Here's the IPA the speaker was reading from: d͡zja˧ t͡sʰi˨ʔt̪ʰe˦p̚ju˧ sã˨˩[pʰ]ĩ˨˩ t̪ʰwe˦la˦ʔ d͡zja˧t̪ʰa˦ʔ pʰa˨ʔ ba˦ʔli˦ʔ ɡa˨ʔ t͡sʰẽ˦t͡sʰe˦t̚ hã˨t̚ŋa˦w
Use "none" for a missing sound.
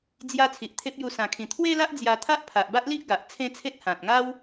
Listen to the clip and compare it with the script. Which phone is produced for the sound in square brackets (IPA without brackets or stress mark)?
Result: kʰ